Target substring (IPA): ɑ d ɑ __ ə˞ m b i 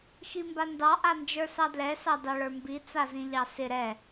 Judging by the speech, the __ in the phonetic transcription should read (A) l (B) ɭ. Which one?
B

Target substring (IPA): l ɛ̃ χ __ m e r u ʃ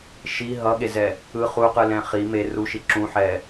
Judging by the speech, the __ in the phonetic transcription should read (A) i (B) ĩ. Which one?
A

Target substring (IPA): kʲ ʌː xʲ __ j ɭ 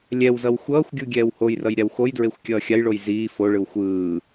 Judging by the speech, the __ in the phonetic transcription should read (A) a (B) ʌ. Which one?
A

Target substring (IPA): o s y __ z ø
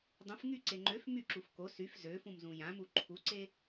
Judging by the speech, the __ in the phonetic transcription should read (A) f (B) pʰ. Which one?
A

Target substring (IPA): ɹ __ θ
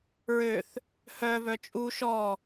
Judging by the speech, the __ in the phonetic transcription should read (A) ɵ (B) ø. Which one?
B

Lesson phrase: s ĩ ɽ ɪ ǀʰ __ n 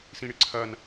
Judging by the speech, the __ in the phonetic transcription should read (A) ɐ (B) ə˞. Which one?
A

